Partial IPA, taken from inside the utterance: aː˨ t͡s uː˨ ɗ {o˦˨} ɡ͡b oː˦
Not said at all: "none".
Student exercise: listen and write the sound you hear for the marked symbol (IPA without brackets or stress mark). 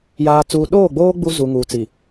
oː˦˨